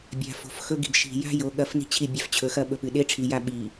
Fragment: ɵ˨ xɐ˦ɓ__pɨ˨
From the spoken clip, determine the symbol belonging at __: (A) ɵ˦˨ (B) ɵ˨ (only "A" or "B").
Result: B